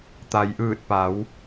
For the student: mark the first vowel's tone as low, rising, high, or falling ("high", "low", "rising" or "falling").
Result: low